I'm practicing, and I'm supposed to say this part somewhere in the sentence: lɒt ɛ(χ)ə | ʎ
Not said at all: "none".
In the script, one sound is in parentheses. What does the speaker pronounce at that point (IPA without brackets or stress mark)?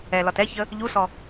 ç